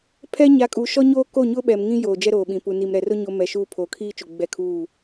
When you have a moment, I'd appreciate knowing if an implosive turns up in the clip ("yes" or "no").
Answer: yes